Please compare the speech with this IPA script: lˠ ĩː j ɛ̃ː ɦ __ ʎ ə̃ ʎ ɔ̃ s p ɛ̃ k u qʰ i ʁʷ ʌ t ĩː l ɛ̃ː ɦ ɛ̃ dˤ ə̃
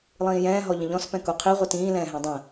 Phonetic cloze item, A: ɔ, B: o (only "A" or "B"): A